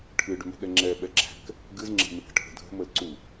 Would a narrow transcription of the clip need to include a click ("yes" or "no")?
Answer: yes